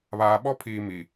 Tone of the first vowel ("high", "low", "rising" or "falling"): low